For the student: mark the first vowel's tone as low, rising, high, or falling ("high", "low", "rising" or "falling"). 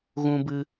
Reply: high